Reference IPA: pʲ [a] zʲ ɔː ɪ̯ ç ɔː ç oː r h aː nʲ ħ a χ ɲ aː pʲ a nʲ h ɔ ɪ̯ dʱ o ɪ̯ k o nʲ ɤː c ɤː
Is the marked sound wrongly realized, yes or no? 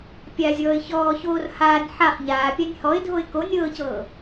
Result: no